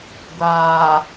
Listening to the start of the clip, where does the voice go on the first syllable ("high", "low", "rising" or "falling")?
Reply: low